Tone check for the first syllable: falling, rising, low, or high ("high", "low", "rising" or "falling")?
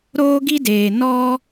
high